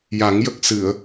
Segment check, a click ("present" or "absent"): absent